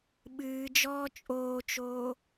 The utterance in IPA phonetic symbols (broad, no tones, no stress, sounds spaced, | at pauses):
ɓ ɨː d͡ʒ ɔː t͡ʃʼ oː t͡ʃ oː